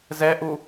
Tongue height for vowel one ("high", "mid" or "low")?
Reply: mid